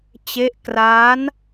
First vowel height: mid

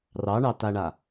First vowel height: low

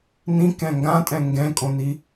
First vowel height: high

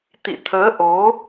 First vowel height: high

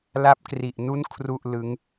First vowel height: low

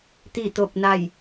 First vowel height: high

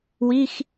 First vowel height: high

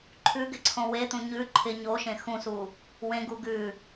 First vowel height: high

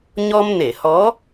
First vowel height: mid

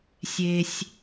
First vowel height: mid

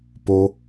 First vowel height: mid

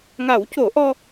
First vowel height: low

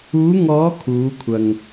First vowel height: high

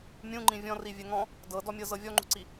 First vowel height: high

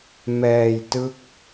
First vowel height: mid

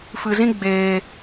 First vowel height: high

